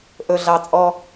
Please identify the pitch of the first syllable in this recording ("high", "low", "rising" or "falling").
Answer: low